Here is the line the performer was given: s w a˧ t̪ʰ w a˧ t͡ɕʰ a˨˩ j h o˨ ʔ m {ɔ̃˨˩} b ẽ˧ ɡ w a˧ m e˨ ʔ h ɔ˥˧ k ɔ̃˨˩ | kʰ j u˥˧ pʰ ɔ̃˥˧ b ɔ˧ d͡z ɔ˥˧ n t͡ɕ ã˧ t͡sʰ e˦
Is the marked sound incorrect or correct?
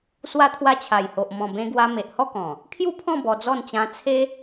correct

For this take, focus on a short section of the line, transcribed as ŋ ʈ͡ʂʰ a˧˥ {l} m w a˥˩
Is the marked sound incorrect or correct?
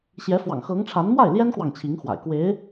incorrect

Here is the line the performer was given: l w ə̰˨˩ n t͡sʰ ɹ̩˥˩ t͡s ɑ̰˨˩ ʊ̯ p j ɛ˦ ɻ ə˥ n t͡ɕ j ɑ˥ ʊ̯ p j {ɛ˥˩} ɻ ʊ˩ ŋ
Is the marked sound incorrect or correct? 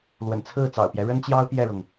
correct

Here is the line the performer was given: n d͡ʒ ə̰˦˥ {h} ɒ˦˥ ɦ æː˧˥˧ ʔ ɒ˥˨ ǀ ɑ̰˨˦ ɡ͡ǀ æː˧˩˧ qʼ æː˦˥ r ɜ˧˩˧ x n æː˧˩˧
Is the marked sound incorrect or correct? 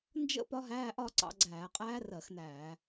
incorrect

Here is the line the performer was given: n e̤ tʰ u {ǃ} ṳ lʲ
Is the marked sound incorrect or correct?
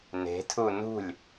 incorrect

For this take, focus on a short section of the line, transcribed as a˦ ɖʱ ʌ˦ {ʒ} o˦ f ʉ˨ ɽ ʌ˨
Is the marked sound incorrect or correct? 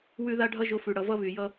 correct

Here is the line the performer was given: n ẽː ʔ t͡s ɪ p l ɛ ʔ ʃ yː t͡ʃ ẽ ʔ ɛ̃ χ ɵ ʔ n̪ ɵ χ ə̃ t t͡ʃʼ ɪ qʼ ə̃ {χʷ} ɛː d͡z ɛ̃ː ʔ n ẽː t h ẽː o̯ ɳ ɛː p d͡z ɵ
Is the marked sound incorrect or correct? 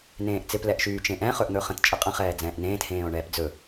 incorrect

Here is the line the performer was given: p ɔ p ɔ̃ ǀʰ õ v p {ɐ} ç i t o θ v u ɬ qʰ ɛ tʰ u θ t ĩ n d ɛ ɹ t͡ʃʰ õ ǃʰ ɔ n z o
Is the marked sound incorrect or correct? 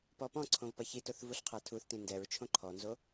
correct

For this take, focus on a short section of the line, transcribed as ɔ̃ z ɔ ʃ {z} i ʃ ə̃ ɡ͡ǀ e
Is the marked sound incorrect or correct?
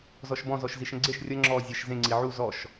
correct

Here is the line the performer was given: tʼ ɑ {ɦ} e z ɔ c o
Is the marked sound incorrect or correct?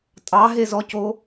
correct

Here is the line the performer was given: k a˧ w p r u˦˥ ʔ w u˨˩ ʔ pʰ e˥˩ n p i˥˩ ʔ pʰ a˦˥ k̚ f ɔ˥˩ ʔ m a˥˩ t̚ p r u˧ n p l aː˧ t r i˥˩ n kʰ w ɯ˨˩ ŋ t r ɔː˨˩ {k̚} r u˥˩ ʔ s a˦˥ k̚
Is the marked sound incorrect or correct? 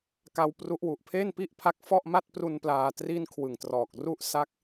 correct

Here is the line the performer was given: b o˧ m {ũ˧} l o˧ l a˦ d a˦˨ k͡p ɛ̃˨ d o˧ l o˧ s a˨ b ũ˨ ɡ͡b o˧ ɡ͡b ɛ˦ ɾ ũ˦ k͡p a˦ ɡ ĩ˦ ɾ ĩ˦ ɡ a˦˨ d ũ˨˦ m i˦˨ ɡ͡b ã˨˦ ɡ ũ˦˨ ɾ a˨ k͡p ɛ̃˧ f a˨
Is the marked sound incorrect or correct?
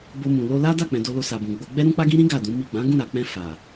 incorrect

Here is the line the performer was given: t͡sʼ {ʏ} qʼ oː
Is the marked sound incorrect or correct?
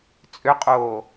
correct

